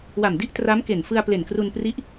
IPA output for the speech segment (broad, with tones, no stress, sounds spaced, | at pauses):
w a˨˩ m d i˥˩ ʔ t r a˦˥ m k e˨˩ n f ɯ˧ a̯ p l e˨˩ n k r u˧ n p r i˦˥ ʔ